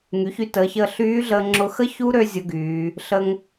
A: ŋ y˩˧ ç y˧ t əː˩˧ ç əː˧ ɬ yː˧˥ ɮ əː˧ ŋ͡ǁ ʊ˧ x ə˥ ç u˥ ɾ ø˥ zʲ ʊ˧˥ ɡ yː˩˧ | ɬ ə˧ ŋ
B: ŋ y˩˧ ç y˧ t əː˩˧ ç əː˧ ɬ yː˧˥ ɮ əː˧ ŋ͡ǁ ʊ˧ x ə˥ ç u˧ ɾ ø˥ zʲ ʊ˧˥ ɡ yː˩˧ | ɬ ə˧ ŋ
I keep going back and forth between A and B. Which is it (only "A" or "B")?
A